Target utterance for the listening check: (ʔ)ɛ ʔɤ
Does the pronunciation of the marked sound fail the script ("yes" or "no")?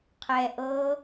yes